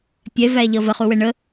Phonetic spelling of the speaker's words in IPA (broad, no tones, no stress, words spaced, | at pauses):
pʲɛvæʎʌ vəχuwɛ ɳə